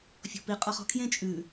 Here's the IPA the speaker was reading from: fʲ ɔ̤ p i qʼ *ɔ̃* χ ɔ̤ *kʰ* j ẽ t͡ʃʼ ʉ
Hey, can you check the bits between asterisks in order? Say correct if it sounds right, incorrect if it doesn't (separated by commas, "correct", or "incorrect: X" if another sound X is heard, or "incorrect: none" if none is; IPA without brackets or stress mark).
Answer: incorrect: ɔ, correct